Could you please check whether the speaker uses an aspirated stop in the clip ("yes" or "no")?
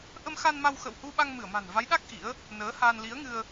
no